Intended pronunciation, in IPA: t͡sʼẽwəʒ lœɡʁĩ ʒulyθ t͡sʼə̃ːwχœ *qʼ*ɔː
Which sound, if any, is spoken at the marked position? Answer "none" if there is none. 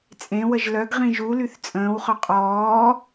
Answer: qʼ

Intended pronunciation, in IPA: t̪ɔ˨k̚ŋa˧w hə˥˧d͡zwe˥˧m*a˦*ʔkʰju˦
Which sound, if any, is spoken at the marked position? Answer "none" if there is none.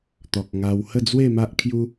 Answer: a˦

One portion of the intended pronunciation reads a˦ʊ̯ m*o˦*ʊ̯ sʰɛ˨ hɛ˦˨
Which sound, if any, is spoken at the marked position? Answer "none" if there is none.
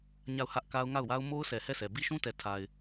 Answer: o˦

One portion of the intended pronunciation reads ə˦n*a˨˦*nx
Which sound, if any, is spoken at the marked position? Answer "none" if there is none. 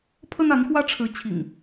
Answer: a˨˦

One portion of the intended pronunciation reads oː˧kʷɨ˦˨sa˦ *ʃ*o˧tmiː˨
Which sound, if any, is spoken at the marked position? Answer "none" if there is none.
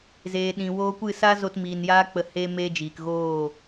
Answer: z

